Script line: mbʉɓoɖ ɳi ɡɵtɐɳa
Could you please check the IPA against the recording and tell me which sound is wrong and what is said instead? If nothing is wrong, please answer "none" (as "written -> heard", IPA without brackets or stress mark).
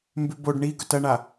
ɓ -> b